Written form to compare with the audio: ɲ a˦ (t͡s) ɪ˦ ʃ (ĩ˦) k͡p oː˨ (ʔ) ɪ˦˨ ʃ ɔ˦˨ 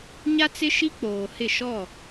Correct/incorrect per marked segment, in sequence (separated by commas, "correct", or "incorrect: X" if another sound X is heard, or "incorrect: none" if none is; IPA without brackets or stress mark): correct, incorrect: i˦, incorrect: h